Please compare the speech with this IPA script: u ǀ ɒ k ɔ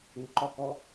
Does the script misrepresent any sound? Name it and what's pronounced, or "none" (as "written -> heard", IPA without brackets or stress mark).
ǀ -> ǃ